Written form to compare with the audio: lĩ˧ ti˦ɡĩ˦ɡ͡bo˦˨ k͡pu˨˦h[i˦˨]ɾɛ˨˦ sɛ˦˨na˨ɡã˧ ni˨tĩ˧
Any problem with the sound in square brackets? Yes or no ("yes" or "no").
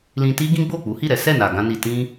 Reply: no